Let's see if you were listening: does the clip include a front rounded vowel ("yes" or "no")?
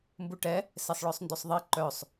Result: yes